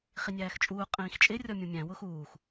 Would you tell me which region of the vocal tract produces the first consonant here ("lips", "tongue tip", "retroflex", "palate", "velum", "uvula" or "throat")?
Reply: uvula